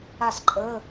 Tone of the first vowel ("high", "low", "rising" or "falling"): falling